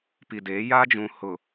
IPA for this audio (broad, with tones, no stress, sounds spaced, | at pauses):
p i˨ d eː˨˦ j a˦ d͡ʒ ũ˨ h ʊ˨